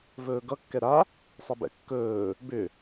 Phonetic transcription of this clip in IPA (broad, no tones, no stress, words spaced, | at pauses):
vɵːɡʌ kːɛɾa | sˤebɛ̰kːɵː | bʏ